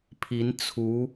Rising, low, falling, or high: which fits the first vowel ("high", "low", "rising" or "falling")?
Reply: rising